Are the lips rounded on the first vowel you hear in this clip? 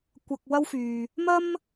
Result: no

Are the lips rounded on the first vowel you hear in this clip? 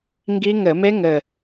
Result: no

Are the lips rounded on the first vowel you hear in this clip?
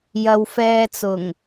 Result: no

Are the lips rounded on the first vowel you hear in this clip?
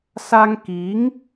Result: no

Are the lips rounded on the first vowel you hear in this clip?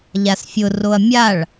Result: no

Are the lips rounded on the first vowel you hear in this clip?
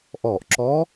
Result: yes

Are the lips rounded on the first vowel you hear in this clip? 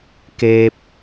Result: no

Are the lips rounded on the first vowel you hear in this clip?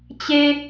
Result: no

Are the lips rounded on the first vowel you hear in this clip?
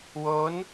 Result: yes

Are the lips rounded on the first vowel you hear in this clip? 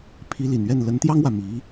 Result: no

